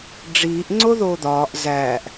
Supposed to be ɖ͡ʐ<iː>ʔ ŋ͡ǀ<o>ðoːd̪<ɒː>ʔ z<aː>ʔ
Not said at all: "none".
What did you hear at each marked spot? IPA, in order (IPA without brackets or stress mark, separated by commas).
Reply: iː, o, ɒː, æː